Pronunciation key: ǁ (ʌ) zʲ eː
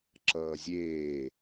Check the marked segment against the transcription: incorrect: ʌː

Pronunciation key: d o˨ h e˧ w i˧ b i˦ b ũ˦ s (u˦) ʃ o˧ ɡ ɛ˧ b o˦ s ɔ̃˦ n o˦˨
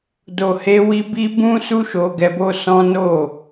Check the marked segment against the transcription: correct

